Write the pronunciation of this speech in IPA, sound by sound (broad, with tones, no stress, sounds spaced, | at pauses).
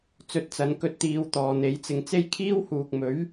t͡s ɵ˨˥ t̚ t͡s ɐ˨˧ n k ɵ˧ t̚ t̪ iː˨˧ w t̪ ɔː˨ n̪ e˨˥ j t͡s ɪ˧ ŋ t͡s e˥ j kʰ iː˥ w h uː˨ k̚ m ɵ˨˥ ɥ